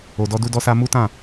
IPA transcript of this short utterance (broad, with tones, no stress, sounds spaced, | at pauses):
o˨ d ɔ˧ d u˧ d ɔ˧ s a˧ m u˦ t ã˦˨